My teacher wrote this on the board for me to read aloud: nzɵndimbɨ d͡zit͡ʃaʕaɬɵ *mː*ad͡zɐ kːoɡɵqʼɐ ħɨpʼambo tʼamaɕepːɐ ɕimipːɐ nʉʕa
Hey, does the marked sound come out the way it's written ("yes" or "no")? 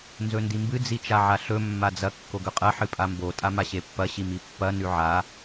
yes